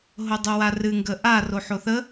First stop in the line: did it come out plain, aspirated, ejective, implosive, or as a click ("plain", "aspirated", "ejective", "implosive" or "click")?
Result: plain